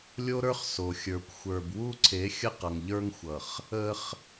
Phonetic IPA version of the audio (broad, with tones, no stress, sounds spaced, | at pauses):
lʲ o˦ ɾ ə˞˦ χ s o˨ xʲ ə˞˨ kʷ xʷ ə˞˨ b w u˦ ǀʰ e˨˦ xʲ ə˦ q ʌ˨ ŋ ʎ ə˞˦ ŋ xʷ ʌ˨ χ | ə˦ χ